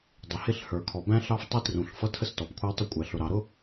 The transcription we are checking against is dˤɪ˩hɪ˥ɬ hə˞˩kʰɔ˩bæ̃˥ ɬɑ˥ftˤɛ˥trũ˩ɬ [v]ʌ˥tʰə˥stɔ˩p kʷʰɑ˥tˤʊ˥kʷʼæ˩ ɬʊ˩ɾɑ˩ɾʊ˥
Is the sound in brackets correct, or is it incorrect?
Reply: incorrect